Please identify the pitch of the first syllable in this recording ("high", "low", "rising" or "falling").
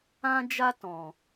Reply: high